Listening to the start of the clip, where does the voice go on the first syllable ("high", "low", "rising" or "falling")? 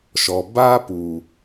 low